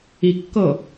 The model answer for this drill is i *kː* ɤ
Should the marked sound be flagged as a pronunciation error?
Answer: no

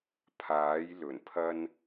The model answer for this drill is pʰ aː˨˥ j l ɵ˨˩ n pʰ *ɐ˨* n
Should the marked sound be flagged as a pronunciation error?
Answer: yes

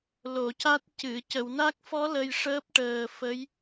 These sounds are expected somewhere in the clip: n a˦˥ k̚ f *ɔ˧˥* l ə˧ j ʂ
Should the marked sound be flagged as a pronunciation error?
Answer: no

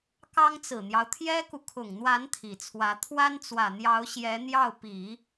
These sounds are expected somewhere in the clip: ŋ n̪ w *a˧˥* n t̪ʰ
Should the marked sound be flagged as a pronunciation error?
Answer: no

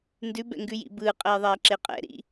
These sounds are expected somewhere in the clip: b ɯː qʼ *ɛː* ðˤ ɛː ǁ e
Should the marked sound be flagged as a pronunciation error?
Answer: no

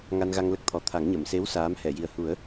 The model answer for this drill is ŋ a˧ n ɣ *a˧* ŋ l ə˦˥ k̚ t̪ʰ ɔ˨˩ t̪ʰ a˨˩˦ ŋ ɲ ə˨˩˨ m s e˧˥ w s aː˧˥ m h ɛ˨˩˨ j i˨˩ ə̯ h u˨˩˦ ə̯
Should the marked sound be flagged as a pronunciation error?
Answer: no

